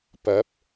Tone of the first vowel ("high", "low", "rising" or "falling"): rising